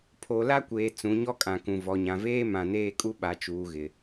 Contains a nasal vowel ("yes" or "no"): yes